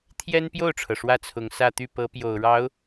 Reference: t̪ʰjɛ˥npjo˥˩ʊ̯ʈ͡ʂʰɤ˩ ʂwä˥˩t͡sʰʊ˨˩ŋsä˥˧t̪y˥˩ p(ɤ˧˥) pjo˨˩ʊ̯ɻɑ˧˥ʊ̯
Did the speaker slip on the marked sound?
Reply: no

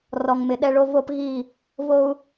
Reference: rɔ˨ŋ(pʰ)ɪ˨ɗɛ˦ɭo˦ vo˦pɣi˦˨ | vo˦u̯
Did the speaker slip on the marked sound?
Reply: yes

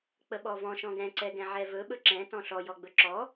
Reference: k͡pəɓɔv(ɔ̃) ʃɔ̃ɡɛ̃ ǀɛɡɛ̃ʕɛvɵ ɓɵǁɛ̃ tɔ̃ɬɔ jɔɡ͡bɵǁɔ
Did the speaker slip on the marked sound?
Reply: no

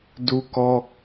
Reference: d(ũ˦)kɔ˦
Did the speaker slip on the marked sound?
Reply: yes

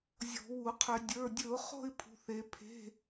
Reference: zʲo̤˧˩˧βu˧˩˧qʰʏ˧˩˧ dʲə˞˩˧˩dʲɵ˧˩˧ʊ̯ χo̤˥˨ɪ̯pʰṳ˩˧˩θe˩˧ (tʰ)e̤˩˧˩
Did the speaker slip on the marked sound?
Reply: yes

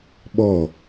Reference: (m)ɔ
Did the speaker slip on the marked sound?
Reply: yes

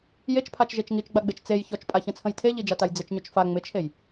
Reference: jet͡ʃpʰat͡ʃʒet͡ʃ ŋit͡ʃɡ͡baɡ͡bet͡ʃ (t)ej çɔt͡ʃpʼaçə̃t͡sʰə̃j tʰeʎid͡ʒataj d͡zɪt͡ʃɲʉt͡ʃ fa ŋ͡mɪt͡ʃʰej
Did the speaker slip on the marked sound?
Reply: yes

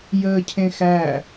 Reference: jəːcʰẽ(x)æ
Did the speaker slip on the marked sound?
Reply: no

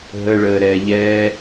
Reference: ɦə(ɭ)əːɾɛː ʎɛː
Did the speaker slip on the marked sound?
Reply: no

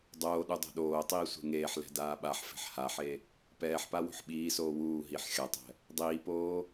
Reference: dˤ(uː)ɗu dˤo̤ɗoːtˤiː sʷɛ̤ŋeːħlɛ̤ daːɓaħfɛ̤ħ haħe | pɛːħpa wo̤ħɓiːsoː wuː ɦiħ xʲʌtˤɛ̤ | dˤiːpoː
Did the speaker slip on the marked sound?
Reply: yes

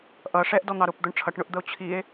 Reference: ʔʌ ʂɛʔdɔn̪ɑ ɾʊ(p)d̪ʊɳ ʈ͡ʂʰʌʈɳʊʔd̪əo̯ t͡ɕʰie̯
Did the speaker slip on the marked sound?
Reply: no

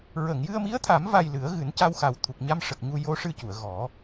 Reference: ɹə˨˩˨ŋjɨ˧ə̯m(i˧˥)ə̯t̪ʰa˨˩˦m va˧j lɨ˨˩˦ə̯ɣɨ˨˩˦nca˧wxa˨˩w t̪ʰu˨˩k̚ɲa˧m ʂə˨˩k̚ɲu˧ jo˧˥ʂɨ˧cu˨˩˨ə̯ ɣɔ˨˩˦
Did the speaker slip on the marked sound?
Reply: no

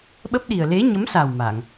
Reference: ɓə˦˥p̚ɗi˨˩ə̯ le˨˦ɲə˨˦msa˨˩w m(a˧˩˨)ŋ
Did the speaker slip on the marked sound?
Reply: no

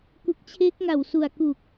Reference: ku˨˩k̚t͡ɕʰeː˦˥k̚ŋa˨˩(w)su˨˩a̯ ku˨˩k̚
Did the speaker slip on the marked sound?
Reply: no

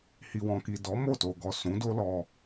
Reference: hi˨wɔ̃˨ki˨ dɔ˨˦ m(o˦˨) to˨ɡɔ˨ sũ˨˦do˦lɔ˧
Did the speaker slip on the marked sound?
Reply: no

